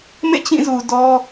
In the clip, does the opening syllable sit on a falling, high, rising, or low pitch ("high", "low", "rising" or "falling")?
falling